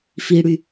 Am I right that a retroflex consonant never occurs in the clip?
no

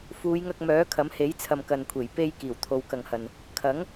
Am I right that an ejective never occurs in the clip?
yes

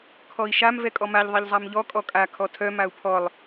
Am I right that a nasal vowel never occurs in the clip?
yes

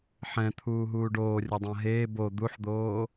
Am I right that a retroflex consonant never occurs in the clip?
no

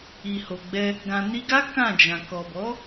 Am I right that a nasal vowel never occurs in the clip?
no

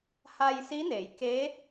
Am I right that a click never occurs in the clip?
yes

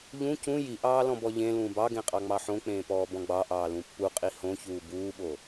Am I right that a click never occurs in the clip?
yes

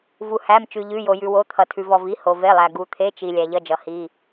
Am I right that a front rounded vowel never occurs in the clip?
yes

